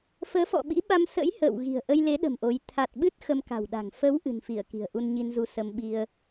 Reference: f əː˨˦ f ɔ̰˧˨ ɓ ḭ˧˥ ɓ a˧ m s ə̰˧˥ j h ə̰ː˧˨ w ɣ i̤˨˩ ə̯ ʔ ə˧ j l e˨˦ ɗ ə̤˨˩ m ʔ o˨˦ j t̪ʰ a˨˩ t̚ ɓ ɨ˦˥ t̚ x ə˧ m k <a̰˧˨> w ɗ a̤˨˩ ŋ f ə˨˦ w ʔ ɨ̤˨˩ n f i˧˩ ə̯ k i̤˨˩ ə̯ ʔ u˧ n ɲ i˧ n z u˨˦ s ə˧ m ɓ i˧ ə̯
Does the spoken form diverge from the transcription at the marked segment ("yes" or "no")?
yes